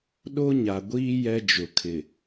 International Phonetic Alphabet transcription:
ɗ o˦ ɲ a˨ ɡʷ iː˦ j ɛ˦ d͡ʒ ʊ˨ kʰ ɪ˨

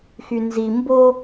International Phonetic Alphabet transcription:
x y n z i m b o

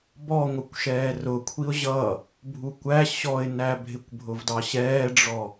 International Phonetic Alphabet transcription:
b ɔ ŋʷ ə kʷ ʃ ɛː r ʊ kʷʰ i ʊ̯ ʑ ʌ | bʱ u kʷ æ ɕ ɔ ɪ̯ n æ bʱ ɪ kʷ bʱ ʊ v d ɑ ɕ ɛː ɖ͡ʐ ɔ

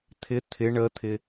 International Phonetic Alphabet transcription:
t̪ʰ ɪ t̪ʰ ɪ ɳ ə t̪ʰ ɪ

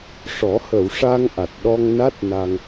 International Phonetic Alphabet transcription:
ʂ ɔ˨˩˦ h ə˨˩˨ w ʂ a˧ ŋ ʔ a˨˩ t̚ ɗ ɔ˧ ŋ n a˦˥ t̚ n a˧ ŋ

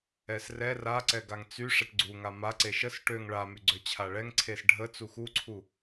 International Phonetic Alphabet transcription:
ɛ s r ɛ r a ǀ ɛ ɡ a ŋ t͡s y ʂ ɛ ʈ ɡ͡ǀ u ŋ a m a ǀ e ʃ ə s ʈ ø ŋ ɭ a m y ɡ͡ǀ ø t͡ɕʰ a ɭ ɛ ŋ ǀʰ e s ɖʱ ə t͡s u x u ǀʰ u

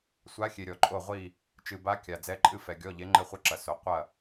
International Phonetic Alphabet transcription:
sʷ a˨˦ xʲ e˩ ɾʲ ɔ˩ ǃʼ o˧˩ ʁʷ i˧˩ | t͡ʃ ɨ˩ b a˨˦ kʲ a˩ d͡z ɛ˨˦ ǃʼ ɨ˧˩ f ɛ˩ ɡʲ ɔ˩˧˩ ʎ e˨˦ ŋ͡ǃ ɘ˧˩ χʷ ɘ˧˩ ǁ ɐ˩ s o˩ qʷ ɐ˧˩

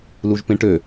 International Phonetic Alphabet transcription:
l u ʒ p ẽ ʈ ø

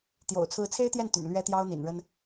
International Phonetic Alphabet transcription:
t̪ j o̰˨˩ ʊ̯ t͡sʰ ɹ̩˧˥ t͡sʰ e˥ ɪ̯ t̪ j ɛ˥˩ n t̪ y̰˨˩ n l ɥ ɛ˥ t̪ j ɑ˥ ʊ̯ n̪ ḭ˨˩ n ɻ ə˥ n

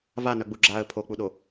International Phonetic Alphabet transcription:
v a n œ ɡ͡b u ɡ͡ǁ a ə̯ pʰ o k͡p u ɗ o

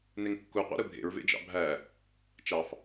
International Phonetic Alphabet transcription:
n e ŋ kː u qʷ ɑ̰ ɾ ɯ bʱ ḛ ɹ v ḛ d͡ʒ ɑ̰ bʱ æ | t͡ʃ ɑ f

